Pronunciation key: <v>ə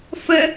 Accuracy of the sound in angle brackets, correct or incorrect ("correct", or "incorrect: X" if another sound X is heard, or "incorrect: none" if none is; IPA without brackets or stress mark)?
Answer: incorrect: f